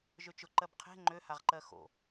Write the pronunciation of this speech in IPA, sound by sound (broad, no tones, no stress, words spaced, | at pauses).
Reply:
ʒøt͡ʃʊ ǃɜbqʰe̤ ŋ͡ǃøhaʁǃɜ xo̰